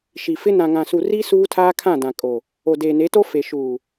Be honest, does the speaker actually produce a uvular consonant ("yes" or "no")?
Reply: no